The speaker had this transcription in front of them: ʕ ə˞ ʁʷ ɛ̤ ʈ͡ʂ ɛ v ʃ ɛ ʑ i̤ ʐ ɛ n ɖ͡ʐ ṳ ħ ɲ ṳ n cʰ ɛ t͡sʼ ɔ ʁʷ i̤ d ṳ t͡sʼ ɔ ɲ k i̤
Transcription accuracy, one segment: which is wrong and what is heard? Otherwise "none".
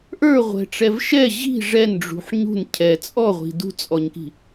ʕ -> ʔ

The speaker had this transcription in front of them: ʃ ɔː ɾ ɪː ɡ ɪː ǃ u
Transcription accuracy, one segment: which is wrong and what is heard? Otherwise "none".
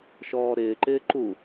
ɡ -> ǃ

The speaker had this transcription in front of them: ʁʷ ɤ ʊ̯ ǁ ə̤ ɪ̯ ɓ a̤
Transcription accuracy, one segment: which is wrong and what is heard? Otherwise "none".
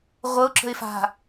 ɓ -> f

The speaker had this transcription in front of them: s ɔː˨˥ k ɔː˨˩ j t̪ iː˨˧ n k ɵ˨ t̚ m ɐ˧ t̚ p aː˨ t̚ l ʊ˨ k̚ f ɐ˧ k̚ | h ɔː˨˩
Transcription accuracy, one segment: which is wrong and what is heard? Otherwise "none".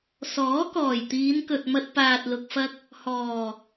none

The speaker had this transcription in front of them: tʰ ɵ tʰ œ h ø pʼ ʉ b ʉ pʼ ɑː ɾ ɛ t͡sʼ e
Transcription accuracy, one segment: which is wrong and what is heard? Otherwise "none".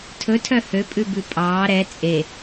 none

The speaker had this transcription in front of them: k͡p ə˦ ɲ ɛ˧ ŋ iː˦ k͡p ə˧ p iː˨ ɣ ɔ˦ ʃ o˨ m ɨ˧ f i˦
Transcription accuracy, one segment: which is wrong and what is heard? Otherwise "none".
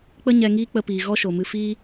i˦ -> iː˦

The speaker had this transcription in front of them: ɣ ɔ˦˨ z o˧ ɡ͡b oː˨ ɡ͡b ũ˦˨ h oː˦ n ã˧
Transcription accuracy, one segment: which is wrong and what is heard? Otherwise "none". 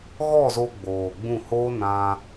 none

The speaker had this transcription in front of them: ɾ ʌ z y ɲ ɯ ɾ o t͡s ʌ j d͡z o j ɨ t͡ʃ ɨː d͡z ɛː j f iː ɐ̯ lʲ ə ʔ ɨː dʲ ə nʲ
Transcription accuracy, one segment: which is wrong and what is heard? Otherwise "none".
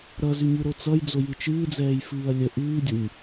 iː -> ɨː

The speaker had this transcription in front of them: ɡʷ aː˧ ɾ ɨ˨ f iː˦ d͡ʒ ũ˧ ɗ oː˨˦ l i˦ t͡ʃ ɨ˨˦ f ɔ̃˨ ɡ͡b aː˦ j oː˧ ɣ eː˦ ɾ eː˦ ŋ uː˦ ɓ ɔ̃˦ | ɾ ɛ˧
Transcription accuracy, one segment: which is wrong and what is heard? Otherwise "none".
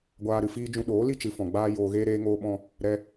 uː˦ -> oː˦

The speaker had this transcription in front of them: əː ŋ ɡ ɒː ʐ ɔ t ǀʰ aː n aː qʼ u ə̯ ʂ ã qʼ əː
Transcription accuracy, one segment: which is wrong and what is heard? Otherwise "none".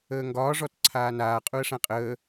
none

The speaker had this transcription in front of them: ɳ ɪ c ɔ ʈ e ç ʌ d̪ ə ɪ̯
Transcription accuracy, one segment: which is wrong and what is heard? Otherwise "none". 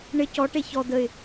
ʌ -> ɔ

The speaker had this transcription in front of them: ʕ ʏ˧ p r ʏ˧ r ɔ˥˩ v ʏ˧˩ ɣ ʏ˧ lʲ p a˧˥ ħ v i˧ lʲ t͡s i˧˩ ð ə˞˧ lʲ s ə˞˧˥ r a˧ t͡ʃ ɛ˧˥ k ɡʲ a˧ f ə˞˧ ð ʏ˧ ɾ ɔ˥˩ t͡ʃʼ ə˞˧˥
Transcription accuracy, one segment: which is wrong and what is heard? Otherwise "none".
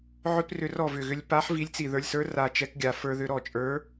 none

